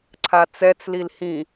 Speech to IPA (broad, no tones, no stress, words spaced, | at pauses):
ǀʰat͡sɛt͡slil hĩ